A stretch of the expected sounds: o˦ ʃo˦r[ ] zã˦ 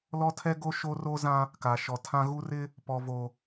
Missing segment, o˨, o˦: o˦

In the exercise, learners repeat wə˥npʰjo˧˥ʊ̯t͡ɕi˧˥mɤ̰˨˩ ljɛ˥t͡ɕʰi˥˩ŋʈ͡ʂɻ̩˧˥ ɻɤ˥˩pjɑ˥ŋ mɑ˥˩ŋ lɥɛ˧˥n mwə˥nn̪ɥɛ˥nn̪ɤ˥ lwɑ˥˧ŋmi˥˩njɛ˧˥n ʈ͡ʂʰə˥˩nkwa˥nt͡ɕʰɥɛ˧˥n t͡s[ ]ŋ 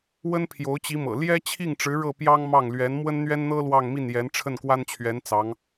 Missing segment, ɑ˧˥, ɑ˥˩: ɑ˧˥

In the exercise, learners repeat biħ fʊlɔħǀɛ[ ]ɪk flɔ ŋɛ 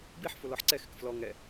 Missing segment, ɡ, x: x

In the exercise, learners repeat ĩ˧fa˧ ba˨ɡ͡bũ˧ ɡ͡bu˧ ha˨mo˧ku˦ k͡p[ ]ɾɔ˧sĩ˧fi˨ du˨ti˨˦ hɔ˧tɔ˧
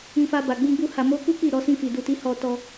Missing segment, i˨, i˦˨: i˦˨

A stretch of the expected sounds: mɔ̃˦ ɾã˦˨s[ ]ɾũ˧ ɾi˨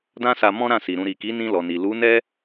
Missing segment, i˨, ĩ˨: i˨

